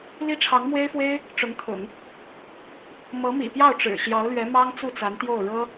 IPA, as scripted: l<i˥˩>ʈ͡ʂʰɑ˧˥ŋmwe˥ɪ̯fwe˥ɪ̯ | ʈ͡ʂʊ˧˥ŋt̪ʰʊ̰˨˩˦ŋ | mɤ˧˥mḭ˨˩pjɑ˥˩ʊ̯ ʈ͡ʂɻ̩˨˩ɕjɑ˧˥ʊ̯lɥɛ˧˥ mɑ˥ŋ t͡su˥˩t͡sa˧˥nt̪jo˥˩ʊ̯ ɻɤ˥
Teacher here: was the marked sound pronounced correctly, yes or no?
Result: no